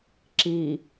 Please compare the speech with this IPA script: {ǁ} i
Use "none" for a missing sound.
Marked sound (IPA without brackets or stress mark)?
ǁ